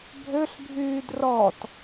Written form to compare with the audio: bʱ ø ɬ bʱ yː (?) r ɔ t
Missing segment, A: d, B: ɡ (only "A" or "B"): A